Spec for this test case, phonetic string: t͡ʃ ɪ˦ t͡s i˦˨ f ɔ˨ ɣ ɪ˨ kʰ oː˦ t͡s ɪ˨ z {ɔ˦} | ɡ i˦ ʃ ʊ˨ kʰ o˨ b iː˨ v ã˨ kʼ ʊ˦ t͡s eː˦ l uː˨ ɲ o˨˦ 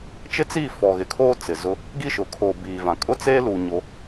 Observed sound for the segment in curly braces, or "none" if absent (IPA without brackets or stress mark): ʊ˦